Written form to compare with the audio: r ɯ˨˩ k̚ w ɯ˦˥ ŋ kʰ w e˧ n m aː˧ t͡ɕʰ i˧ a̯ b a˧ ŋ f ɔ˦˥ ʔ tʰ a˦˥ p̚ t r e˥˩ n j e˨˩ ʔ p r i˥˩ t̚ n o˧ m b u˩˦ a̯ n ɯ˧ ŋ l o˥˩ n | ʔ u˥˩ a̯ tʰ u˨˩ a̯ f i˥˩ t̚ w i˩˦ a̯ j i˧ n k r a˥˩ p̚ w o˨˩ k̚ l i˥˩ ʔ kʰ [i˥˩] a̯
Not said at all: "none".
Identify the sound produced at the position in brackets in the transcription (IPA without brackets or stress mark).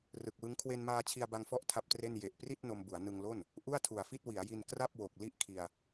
i˧